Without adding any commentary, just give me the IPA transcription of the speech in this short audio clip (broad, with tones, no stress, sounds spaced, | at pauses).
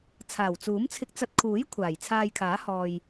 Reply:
t͡sʰ aː˨˩ w t͡s uː˨˥ m t͡sʰ ɪ˧ k̚ t͡s ɐ˧ t̚ kʰ uː˨˥ j kʷʰ aː˨˩ j t͡sʰ aː˧ j kʰ aː˨˥ h ɔː˧ j